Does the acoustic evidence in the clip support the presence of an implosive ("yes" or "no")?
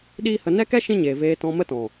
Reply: yes